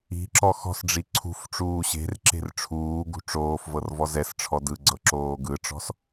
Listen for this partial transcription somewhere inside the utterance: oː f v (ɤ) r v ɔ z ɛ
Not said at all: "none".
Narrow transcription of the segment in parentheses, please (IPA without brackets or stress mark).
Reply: ɤ